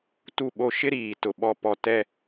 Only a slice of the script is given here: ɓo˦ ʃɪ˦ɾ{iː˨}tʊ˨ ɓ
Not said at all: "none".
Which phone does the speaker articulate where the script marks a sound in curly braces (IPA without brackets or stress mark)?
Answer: iː˨